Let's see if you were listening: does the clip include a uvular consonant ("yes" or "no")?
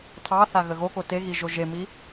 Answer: no